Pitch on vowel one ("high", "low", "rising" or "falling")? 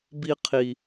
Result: high